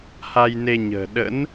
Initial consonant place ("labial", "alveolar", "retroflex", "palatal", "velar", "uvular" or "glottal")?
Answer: glottal